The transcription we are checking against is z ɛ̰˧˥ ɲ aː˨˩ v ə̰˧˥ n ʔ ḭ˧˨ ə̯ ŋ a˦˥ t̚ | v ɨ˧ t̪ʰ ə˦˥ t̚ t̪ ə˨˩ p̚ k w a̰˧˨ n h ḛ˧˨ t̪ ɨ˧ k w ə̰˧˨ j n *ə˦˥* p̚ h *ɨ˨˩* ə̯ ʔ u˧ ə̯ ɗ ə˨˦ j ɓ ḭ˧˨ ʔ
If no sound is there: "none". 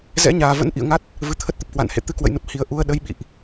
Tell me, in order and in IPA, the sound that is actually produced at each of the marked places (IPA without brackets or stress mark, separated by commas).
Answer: ə˨˩, i˨˩